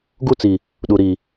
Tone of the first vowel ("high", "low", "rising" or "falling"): high